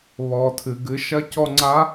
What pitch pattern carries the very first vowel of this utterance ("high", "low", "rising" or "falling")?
low